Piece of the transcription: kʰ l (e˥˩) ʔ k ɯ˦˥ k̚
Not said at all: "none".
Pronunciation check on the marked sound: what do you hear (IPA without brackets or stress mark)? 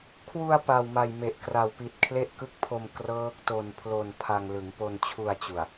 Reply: e˥˩